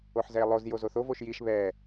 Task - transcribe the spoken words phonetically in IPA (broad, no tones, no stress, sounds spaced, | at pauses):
o ħ z ɛ e̯ lˠ o z j o z o θ o v o ʃ j i ʃ β ɛ